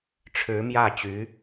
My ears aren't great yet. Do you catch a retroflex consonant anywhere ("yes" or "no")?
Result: yes